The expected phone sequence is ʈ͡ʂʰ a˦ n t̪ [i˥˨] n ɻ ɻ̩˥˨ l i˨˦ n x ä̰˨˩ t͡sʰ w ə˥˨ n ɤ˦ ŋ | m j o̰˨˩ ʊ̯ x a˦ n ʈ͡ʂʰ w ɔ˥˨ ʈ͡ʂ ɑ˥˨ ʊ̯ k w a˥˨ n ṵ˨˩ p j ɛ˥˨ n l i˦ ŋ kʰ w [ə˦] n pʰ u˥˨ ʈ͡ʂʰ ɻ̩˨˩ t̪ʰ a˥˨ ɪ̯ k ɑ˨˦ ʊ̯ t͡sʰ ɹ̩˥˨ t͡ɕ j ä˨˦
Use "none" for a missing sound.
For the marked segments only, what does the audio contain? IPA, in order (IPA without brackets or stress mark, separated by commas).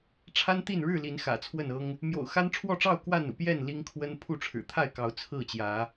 i˥˨, ə˦